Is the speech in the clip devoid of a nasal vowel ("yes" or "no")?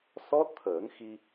yes